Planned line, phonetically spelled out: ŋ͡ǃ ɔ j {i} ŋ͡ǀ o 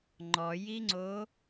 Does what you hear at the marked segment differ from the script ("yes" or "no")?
no